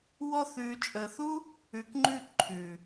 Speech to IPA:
w ɔ˧ θ ʉː˨ t͡ʃʼ əː˨ θ u˦ | ʉ˨ k ŋ͡ǃ ʉ˦˨ ǃʰ ʉ˨

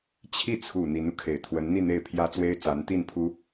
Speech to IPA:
t͡ɕʰ i˥˩ t͡sʰ u˨˩ n̪ i˧˥ n u˧ kʰ e˨˩ ɪ̯ t̪ʰ w ə˧˥ n n̪ i˥˧ n̪ e˥˩ ɪ̯ pʰ j ä˥ t͡s w e˥ ɪ̯ t͡s a˧˥ n t̪ i˥˩ n pʰ u˥

